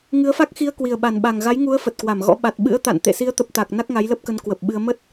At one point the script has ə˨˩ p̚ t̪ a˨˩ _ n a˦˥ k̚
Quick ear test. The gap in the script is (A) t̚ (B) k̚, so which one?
B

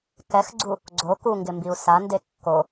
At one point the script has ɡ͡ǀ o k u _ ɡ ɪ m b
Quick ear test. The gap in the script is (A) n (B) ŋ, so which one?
B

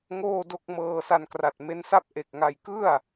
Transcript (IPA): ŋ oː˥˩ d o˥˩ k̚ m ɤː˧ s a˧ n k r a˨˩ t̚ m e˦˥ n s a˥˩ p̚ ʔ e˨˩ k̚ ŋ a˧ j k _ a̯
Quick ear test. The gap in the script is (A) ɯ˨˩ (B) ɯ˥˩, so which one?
B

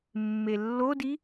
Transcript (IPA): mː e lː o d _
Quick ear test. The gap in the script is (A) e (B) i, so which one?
B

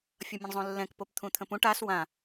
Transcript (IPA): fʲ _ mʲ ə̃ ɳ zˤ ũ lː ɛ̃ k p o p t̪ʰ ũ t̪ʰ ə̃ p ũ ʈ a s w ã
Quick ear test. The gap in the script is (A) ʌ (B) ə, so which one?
A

